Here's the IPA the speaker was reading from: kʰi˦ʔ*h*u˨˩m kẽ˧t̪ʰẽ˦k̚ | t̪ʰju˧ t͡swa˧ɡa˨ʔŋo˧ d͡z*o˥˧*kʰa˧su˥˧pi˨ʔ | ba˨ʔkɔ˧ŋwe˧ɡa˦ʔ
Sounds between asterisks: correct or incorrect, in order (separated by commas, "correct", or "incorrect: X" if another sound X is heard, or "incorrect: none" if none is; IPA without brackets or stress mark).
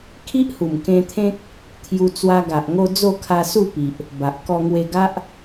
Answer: correct, correct